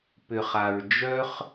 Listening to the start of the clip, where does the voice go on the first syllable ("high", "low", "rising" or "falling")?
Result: low